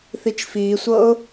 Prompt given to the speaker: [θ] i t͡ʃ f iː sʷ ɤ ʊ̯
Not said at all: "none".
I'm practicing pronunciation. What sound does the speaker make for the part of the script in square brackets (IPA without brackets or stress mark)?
θ